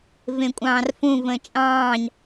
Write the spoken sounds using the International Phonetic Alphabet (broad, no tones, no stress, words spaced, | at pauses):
vẽkʷʼɑ̃ːrfũ və̃t͡ʃʼɑ̃ːɲ